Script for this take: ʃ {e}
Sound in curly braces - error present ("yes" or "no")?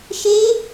no